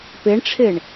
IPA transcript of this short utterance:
peɳʈ͡ʂʰeɳ

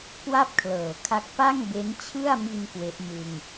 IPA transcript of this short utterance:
kwa˥˩p̚kʰlɤː˩˦kʰa˦˥k̚ pa˥˩ŋbe˦˥nt͡ɕʰɯ˥˩a̯mi˧n kwe˦˥ʔmɯ˧ŋ

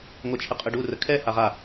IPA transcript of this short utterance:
ŋʷɛt͡ʃʰəqʼəɖu rəkʰɛ haʁa

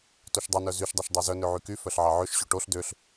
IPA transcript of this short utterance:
toʃdˤønœ zyʃdˤeʃ dˤezœ nøʕyky fœɬʕɑʕøʃɕo ʈoɬ døɬ

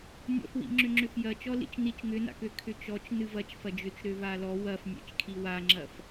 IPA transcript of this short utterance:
nʲɔ̰fwḭŋ͡ǁʏ ŋ͡ǁʏfjɐt͡ʃɔ lḭt͡ʃnit͡ʃ ŋʏna̰kø kʰʏt͡ʃɔt͡ʃ nɨvɐt͡ʃ fɐd͡ʒʏt͡ʃɾø valɔ wɐf nʲɛ̰t͡ʃkʰiwaŋ͡ǁɐf

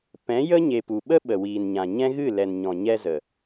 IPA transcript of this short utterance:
pɛ̃˨˦jə˦ɲe˨ pu˨ɓə˦ ɓə˨wiː˨nɲã˨ɲɛ̃˦ ɣɨ˦˨lɛ˨nɲɔ̃˨ɲɛ˧ zə˨

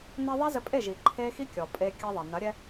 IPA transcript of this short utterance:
nɛ˧ ðˤɐ˦zɘ˧pʼe˦˨ʒi˨ ǃʰe˦ xi˦kʲɔ˨ pʼe˧ kʲɐ˧ðˤɐ˨nɐ˨˦ ɾʲɛ˦

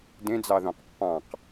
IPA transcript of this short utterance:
dẽd͡zɑðõq pːɑ̃q

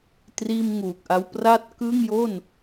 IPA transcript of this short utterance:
triː˥˩mŋuː˨˩k̚ʔa˦˥w pra˦˥t̚ kɯ˥˩ŋjo˥˩n

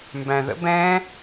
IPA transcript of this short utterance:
mbæ̃ðə̰b ɛ̃

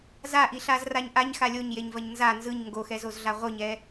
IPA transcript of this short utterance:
zaʔiɬazraɲ ʔaɲxa lʲoɲjeɲvɐɲ nza nzɯɲ ŋɡoxɛzozɮa ʁʷɯɲɛ

